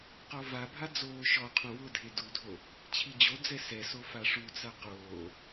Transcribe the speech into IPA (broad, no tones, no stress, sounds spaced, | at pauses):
q ɔ v a bʱ a d͡z oː ʃ ɔ qʰ õ w ʊ dʱ e d u dʱ o | t͡ɕʰ i d͡ʑ o d͡z ɛ s ɛ s o f a ʂ u t͡s a q oː